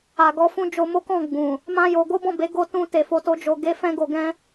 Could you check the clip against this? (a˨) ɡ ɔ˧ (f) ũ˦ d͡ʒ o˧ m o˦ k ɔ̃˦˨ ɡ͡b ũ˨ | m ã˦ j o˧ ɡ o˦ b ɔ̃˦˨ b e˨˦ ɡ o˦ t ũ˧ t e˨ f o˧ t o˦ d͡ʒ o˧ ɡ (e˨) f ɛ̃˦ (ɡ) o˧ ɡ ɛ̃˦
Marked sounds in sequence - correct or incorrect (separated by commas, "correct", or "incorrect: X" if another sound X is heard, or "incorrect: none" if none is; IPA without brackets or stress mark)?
correct, correct, incorrect: e˦, correct